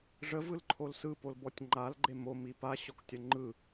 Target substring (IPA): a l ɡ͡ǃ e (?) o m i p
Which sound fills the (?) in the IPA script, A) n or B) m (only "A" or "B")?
B